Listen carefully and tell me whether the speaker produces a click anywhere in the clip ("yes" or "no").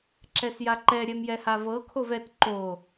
yes